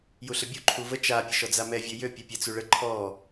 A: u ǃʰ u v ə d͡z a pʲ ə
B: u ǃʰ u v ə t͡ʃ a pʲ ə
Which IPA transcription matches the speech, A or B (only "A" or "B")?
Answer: B